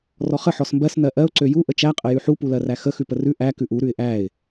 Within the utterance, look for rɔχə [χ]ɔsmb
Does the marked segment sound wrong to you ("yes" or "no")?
yes